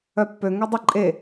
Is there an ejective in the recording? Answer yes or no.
yes